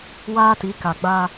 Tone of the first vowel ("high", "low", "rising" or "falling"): high